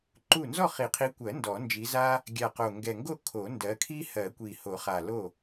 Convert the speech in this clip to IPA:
ǃ u˥˩ n z ɔ˥˩ χ i˨˩˦ qʰ i˨˦ kʷ ɜ˨˩˦ n d ɔ˨˩˦ n d͡ʒ i˨˦ z a˥ | ɡʲ a˨˩ q o˨˩ ŋ ɡ ɛ˨˩ ŋ ɡ o˥˩ kʰ o˨˩˦ n d ɜ˨˦ kʰ i˥ h ɜ˨˩˦ kʷ i˨˩ h o˨˩˦ χ a˨˩ l o˥˩

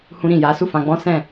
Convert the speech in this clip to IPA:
h ũ˧ ɾ ĩ˨ j a˨˦ s u˦˨ f ã˧ ɡ͡b ɔ̃˦ s ɛ̃˦˨

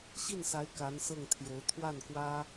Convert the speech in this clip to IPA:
ɕ i˥˩ n s a˧˥ ɪ̯ k a˧˥ n s ɤ˥˩ ŋ t̪ʰ j o˧˥ ʊ̯ t̪ʰ w a˥˩ n k w ä˥

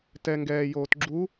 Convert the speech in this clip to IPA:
t ɛ ŋ ɡ ɛː j oː t ɡ͡ǁ u

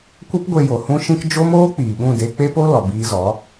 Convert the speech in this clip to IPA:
kʷ ə˦ p ɡʷ e˧ j o˨ h ũ˦ ʃ ĩ˦ k d͡ʒ o˦ m oː˦ k͡p iː˨ ɓ ũ˦˨ d e˧ k͡p e˦ p o˦ l ɔ˨ b iː˧ z ɔ˨˦

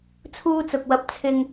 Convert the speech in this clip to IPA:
t͡sʰ uː˥ t͡s ʊ˨ k̚ w ɐ˧ p̚ t͡sʰ ɪ˧ ŋ

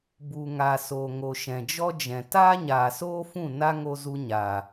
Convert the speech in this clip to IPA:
b u˨ ŋ a˨ s oː˨ ŋ o˨ ʃ ɛ̃˨ d͡ʒ ɔ˦ d͡ʒ ɛ̃˨ t aː˦ ɲ aː˨ s oː˦ f ũ˦˨ n a˦ ŋ o˧ z u˧ ɲ a˨

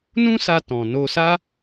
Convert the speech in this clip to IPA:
n ũ˦ s a˧ t ɔ̃˨ n o˧ s a˦

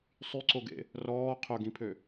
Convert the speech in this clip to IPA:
sˤ y ǀ o ɡ ḛ | r ɔː qʰ ɵ ɡ ĩ pʰ ø

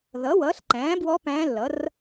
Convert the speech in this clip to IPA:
ð ʌ˩˥ w ʌː˩˥ ɬ ǃ æ̃ː˩˥ b w ɔ˧˥ p æ̃ː˧˥ lː ʌ˩˥ r

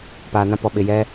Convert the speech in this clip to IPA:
p aː˨ n ã˦ p ɔ˨ ɓ ɪ˨ j ɛ˦

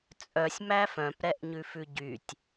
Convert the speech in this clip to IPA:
t͡sʼ œ sʲ m æ f œ̃ p ɾ ɛ ʔ ɲ ʉ f ʉ ɟ y tʲ

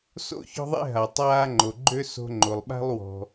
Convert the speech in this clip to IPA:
s o̰˥ ç ɔ̤˥ ðˤ ḛ˥ ɦ a˩ tˤ aː˥ ŋ͡ǃ o˩ ɡ͡ǃ ø˥ s o̤˥ ŋ͡ǃ o˩ lˠ ɓ a̤˥ lˠ w ɔ̤˩

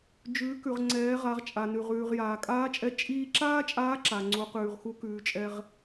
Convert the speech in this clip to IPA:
d͡ʒ ʉː˩˧ k ʉ˩ ʁ ŋ͡ǀ ɛː˩˧ ʁ a˩˧ ʁ t͡ʃʼ a˩ n ʉ˩ ʁ ʉː˩ ʁ j aː˩ kʼ aː˧˥ t͡ʃʼ ɛ˧ t͡ʃʼ iː˧ ǁ aː˥ t͡ʃʼ aː˧˥ ǁ a˩ ŋ͡ǀ u˩˧ q ʉː˩ ʁ x u˧˥ k ʉː˩˧ t͡ʃʼ ɛ˧ ʁ

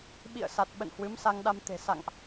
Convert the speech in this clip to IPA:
ɓ ḭ˧˨ ə̯ s a˨˩ t̚ ɓ ə̰˧˨ n h w ɨ˨˦ m s a˧ ŋ ɗ a˧ m t̪ e̤˨˩ s a̰˧˨ ŋ ʔ

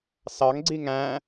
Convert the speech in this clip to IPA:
s ɑ ŋ ɡ͡ǀ i ŋ æ̃

